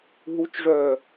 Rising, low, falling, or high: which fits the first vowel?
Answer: rising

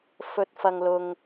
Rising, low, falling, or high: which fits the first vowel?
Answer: low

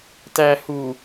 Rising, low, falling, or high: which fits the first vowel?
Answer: low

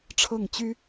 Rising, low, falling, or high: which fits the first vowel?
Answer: falling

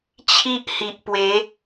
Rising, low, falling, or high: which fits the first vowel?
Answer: high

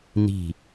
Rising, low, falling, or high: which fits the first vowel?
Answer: falling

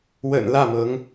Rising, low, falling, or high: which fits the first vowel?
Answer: low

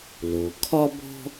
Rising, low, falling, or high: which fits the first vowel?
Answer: low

